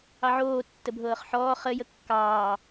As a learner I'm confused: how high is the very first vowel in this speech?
low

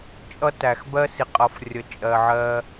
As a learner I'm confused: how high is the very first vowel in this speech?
mid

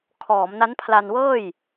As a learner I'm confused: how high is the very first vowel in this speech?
mid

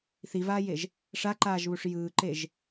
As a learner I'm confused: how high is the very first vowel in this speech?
high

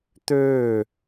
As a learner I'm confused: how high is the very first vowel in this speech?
mid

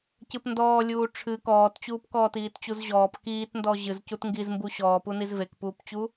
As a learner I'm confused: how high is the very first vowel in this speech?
high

